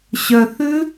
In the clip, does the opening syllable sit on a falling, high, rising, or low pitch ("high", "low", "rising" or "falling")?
low